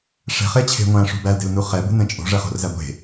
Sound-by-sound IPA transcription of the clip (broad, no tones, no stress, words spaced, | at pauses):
ʂɛ̤χet͡ɕʰe̤ ŋʷæ̃ʂṳ bælde̤lnu χɛbṳnɛ̃ t͡ʃʼo̤ʐɛχo̤rzæ ɡʷe̤